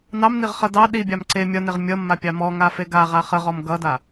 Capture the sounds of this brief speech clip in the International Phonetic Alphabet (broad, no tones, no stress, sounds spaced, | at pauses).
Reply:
n ɑ m n i ʁ χ ʌ d ɑ ɗ i bʲ ɑ m ǀ e mʲ ʌ n e ʁ mʲ ʌ mː a pʲ ɑ m ɔ ŋ a f e ɡ a ʁ a χ ə ʁ ɔ m ɡ ʌ d a